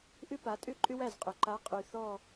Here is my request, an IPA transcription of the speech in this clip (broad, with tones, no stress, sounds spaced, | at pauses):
ʔ ʏ˥ p a˨˦ tʼ ʏ˥ ǃʼ ʏ˥ w æ˥˩ z qʼ ʏ˨˩ ǃ a˨˦ qʼ y˨˩ θ ɔ˥˧